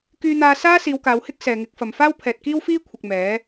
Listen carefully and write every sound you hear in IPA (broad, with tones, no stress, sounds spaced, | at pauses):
k yː˧ n̪ aː˧ s aː˥ s iː˨˧ w k aː˨˧ w h ɪ˥ k̚ s ɛː˨ ŋ ɪ˨˥ k̚ f ɐ˨ m f aː˥ w pʰ ɛː˨ t̚ k iː˥ w f iː˥ kʷʰ ɪ˨ k̚ m ɛː˨˥